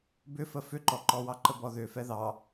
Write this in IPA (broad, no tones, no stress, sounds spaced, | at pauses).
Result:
b ʏ f ə f ʏ ǃ ɔ ǃ ɔ w ɑ ǃ ə b ɔ ð ʏ f ɛ ð ɑ